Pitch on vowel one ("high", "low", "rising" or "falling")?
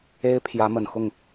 high